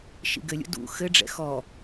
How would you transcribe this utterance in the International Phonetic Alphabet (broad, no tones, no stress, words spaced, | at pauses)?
ʃḭɡɘlʲṵ dṵ xɘɖ͡ʐɛ̰ xɔ